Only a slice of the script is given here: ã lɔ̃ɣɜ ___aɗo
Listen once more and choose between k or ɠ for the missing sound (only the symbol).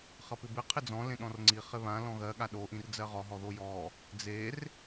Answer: ɠ